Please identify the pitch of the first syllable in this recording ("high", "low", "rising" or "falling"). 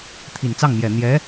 low